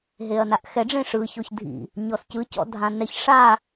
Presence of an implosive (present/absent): absent